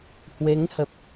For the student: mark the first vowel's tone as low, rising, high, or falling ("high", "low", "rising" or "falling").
rising